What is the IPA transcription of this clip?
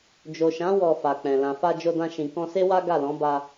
d͡ʒo˨ʃã˨˦ wɔ˧fa˨k͡pɛ̃˨ lã˨fa˧ d͡ʒo˧dã˧ʃĩ˨ kɔ̃˧se˦wa˦ ɡa˦˨lɔ̃˨˦ba˧

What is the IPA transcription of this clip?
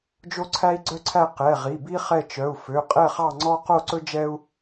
d͡ʒo˥ǀʰæ˥i̯ɡ͡ǀœ˥ǀʰæ˥˧ qɛ˩˧˩ʁi˩˧˩bi˥ χɛ˥˧t͡ʃœ˩˧˩u̯ fø˩˧˩qʼɛ˥˧χɑ˥˧ ŋ͡ǀɔ˥ qo˥˧ǀɵ˥ d͡ʒɛ˥u̯

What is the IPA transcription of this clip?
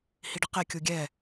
hiɖɪqe kʲuɡʲɛ

